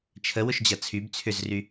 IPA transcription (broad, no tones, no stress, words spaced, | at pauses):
t͡ʃʰə wʊʃd͡ʑɐt͡sʰyb t͡sʰʏzry